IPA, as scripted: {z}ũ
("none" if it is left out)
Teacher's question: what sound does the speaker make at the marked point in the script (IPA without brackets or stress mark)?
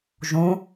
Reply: ʒ